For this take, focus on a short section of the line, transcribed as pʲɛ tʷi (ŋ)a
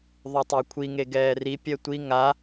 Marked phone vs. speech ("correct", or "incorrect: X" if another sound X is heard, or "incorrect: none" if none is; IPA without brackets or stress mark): correct